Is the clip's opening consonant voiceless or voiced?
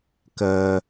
voiceless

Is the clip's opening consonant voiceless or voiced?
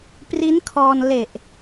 voiceless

